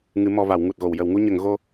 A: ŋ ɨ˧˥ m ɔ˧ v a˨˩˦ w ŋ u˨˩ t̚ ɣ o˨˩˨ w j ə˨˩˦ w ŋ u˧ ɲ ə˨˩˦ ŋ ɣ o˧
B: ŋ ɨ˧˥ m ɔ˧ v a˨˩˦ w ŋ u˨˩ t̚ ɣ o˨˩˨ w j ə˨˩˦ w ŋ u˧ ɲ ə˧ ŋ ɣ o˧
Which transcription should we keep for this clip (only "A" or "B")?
A